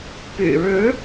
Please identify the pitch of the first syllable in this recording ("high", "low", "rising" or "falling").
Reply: low